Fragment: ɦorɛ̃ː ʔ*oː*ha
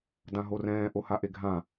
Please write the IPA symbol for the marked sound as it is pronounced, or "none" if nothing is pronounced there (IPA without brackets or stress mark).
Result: o